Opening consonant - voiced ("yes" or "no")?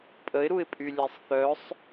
no